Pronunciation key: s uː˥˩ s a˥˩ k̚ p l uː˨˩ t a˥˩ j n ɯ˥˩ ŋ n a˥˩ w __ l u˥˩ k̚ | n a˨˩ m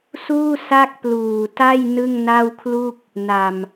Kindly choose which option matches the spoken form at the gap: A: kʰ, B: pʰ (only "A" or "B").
A